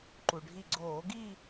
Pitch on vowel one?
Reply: low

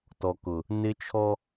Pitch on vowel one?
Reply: low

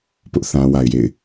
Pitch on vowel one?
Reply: high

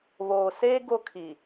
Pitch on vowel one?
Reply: low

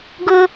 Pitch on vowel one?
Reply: high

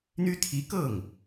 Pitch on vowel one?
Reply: high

